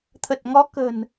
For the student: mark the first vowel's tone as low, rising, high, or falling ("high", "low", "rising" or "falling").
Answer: low